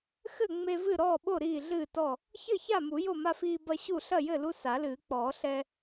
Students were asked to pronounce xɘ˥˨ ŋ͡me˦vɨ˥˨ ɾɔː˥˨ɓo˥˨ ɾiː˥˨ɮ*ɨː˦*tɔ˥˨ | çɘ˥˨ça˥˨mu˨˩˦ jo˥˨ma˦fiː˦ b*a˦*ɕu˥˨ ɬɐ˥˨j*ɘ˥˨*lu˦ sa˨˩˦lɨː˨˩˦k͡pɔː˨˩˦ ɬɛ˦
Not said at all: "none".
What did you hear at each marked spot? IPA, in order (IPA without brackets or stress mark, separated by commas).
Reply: ɨː˥˨, ɐ˦, ɘ˥˨